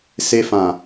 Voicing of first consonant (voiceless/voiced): voiceless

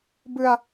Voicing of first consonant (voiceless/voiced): voiced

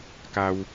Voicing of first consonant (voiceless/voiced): voiceless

